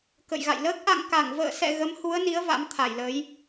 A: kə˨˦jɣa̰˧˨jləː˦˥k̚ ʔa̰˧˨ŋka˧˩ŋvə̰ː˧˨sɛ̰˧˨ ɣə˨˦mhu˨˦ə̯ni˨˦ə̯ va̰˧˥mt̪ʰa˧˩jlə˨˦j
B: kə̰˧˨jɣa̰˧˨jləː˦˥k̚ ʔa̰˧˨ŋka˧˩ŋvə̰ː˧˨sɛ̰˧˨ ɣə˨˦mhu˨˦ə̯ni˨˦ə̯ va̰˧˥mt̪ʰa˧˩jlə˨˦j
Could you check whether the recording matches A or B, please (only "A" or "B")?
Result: B